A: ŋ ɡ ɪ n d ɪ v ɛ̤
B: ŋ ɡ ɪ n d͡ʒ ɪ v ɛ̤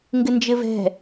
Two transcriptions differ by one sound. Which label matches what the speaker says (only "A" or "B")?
B